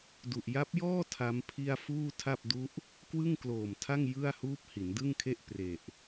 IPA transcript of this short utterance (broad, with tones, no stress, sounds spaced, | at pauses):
d u˨˩ ʔ j a˦˥ p̚ j ɔː˥˩ tʰ a˦˥ m pʰ i˥˩ a̯ f uː˥˩ tʰ a˥˩ p̚ d u˦˥ ʔ | k w ɯ˥˩ ŋ k l oː˨˩ m tʰ a˥˩ ŋ j ɯ˥˩ a̯ h uː˦˥ p̚ h i˩˦ n d ɯ˥˩ ŋ kʰ e˥˩ ʔ p r e˨˩ ʔ